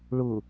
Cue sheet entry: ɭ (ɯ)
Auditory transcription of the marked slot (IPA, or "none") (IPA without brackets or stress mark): ʊ